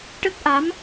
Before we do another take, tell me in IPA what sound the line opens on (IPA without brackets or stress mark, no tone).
ʈ